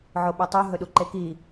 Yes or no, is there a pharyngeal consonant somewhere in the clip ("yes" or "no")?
yes